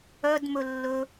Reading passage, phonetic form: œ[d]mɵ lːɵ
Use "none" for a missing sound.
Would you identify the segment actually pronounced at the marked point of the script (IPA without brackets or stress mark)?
d